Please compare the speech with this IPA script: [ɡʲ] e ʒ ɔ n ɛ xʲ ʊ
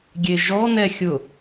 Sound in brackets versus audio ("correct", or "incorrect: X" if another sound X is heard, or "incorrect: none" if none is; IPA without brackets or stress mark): correct